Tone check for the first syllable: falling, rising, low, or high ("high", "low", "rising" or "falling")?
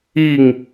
falling